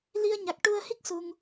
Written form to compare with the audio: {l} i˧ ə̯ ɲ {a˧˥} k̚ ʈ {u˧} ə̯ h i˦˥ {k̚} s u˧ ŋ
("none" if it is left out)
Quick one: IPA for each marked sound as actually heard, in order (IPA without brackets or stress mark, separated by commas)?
l, a˨˩, u˧, k̚